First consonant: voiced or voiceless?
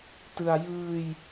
voiceless